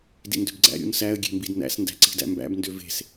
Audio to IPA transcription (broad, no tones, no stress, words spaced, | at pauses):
dḭndøbɡ͡ǀæ̰ ɾʲṵnsæə̯ ɡʲe̤mbidnæ̰s ndæ̤ǀi̤dæ̰mbæ̰b ndøve̤s